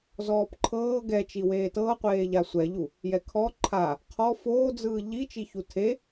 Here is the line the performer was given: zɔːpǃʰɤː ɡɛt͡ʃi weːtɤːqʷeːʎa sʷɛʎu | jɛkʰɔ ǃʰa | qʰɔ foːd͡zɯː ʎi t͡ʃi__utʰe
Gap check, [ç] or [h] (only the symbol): ç